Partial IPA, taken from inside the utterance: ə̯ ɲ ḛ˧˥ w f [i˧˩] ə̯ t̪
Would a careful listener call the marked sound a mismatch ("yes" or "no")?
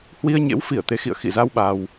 no